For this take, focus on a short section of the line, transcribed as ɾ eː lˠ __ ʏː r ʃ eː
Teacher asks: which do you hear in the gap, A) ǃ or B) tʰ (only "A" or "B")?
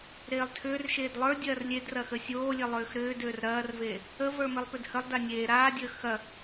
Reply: B